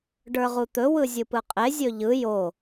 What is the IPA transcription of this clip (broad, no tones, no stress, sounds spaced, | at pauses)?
ɖ ə˞ ʁ u t̪ ɵ w ɯ zʲ ɯ p ɯ qʼ e zʲ ɵ ʎ ɯ j o